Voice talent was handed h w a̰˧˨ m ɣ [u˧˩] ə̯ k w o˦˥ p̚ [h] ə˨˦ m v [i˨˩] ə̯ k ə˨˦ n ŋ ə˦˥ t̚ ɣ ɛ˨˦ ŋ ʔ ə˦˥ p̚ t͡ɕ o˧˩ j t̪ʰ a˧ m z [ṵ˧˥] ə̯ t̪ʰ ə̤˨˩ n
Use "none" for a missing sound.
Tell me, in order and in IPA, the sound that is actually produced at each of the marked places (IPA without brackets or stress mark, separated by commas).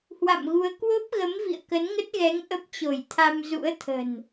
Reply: u˨˦, ɣ, ḭ˧˨, ṵ˧˥